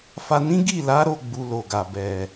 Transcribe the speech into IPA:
f a˧ n ĩ˦ ɡ i˦˨ l a˨˦ ɾ o˦˨ ɡ͡b u˧ l o˨ ɡ a˨ b ɛ˨

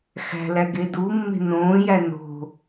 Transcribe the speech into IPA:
x æ̤ l æ ɡ e d u mː e̤ n õː j æ n o̤

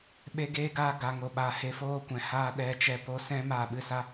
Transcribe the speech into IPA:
ɓ e˧ ɡ eː˧ ɡ aː˧ ɡ a˨ ŋ o˨ ɓ a˨ h e˧ f oː˧ kʷ ɛ̃˨ h aː˧ ɗ ɛ˨ t͡ʃ ɛ˧ p o˧ s ɛ̃˦ m aː˦˨ ɓ ɨ˦ s a˦

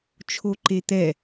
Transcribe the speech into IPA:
t͡ʃʰ o ǃ e t̪ ɛ

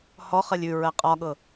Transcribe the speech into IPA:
h ɔ χ ɜ lʲ ʉ ɹ ɜ qʼ ɒ ɠ ɤ

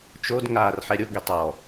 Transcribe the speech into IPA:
t͡ʃ o d ŋ aː r ħ ɛ ɾʲ ʊ ɡ e tˤ ɔ

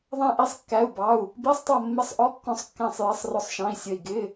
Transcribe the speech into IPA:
ðˤ ɛ̃˦˨ ʔ i˦˨ sˤ kː æ˧˥˧ u̯ b ɑ˧˥˧ u̯ | b i˧˥˧ sˤ tˤ ʌ˦˨ mː ɪ˧˥˧ sˤ ʔ ɔ˧˥˧ kː ɔ̃˦˨ sˤ kː æ̃˦˨ sˤ j ɪ˧˥˧ sˤ r ʊ˦˨ sˤ ʃ ɑ̃˧˥˧ i̯ sʲ ə˦˨ i̯ ɡ ɪ˧˥˧

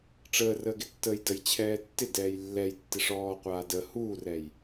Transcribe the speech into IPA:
ʈ͡ʂ əː r əː ɡ ɪ tː əː j d ə j t͡ɕʰ ɛː tː ɪ d ɛː j lː ɛ j tː ɪ ʂ ɔː qʷ aː d ə h uː r ɛː j

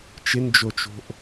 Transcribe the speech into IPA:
t͡ʃ ɪ n d͡ʒ o t͡ʃ o̤ ʔ

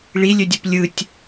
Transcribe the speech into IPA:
ɭ i lʲ ø dʲ o p lʲ ɯ tʲ

